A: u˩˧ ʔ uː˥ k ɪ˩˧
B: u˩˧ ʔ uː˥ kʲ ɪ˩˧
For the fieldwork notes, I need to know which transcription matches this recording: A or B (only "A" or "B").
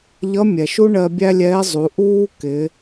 A